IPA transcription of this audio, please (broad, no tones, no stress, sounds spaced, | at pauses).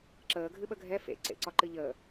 ǁ əː ɡʱ ɨ ɓ ə ɡʱ ɛ f ḛ ǀ ḛ ǀ ɒ ǃ ɨ ʎ əː